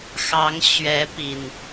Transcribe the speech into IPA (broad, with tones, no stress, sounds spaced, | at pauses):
x ɑ˨˦ ŋ ɕ ɥ ɛ˨˦ p i˨˩ n